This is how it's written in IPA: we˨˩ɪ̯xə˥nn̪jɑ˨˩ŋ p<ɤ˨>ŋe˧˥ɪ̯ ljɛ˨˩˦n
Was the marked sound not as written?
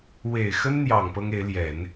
yes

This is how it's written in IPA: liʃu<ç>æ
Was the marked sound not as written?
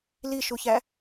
no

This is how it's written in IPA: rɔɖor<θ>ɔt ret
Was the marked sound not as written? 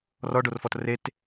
yes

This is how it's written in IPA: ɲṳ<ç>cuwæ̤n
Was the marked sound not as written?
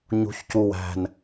no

